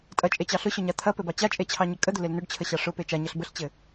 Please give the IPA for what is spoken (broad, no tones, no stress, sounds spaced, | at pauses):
tʼ ɐ t͡ʃʼ e t͡ɕ ɑ ɬ ʊ ɕ ʊ ɲ a t̪ʰ ɐ p ɘ b ɑ t͡ɕ a t͡ʃʼ e t͡ɕʰ ɑ ɲ ə kʼ ə d̪ ʊ l e l n ʊ ɖ t͡ɕʰ ə ɕ ɑ ʂ ʊ p e t͡ʃ a ɲ ɐ ɬ b ə ɬ t͡ɕ ɘ